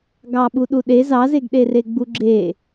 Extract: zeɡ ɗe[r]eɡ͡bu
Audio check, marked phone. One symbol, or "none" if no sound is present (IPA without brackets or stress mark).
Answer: r